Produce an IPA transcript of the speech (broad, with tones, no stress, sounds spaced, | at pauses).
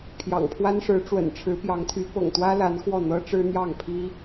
pʰ j ɑ̰˨˩ ŋ pʰ w a˥ n ʂ ɻ̩˧˥ ʈ͡ʂ w ə̰˨˩ n ʈ͡ʂʰ ɻ̩˧˥ p j ɑ˧˥ ŋ t̪ʰ y˧˥ p ɤ̰˨˩ ŋ t̪ w ä˥ l a˧˥ n x w ɔ˥˩ n̪ ɤ˥ ʈ͡ʂ ɻ̩˥ n̪ j ɑ˥˩ ŋ pʰ i˥